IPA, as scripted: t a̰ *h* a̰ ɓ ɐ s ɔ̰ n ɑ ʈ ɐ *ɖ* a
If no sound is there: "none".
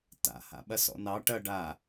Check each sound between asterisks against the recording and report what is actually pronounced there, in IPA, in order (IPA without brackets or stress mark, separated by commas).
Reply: h, ɖ